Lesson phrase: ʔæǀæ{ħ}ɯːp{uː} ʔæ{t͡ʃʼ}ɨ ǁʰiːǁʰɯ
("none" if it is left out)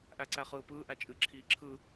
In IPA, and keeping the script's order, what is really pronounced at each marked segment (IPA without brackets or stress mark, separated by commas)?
χ, ɯː, t͡ʃʼ